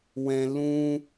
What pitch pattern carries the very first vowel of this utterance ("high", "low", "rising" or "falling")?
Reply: low